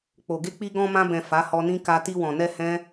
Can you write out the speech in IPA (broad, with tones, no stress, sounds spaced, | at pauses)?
k͡p o˨ ɡ e˧ k͡p i˧ ɡ ɔ̃˧ m ã˧ b ɛ̃˨ f a˨˦ h ɔ˧ n ĩ˦ k a˧ t i˧ w ɔ̃˨ n ɛ˧ h ɛ̃˦